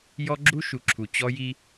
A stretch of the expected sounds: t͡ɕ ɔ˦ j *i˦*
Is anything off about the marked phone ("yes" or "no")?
no